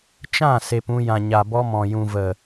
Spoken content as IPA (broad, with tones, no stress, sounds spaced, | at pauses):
t͡ʃ ã˦˨ s e˧ p ũ˧ j ã˨ ɲ a˨ b ɔ˧ m ɔ̃˨ j ũ˨ v ə˨